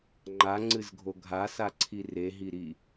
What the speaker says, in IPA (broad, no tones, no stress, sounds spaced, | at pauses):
ŋ͡ǃ a ŋ͡ǀ ɨ z ɡʱ o ɡʱ a s a ǀʰ i r e ɦ i ɾ i